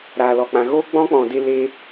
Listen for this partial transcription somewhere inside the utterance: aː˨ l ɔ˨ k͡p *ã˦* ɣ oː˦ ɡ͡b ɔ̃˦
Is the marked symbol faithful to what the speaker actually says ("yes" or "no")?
no